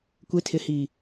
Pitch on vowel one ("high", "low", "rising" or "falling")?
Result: low